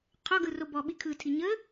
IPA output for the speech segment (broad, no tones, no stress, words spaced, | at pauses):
qʰɔ ɡɯrobɔɓi kʰɯtʰi ɲə